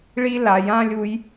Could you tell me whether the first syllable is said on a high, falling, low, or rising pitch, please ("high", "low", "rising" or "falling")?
high